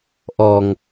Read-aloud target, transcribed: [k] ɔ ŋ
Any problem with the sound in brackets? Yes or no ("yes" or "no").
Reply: yes